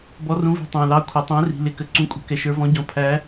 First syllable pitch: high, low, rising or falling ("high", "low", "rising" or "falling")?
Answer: rising